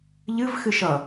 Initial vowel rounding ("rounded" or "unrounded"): unrounded